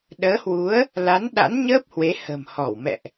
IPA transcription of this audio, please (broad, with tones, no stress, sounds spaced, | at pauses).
ɗ əː˨˦ h w u˨˦ ə̯ | l a˨˦ n ɗ a̰˧˥ n ɲ əː˦˥ p̚ h w e˨˦ h ə̤˨˩ m h ɔ˧˩ w m ɛ̰˧˨ ʔ